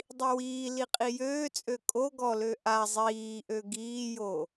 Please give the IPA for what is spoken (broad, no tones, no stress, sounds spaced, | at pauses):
dˤ i w iː l i qʼ i j øː t͡sʼ ø kʼ o ɡ ɔ l ø ʔ a zˤ iː ʔ ø ɡ iː j o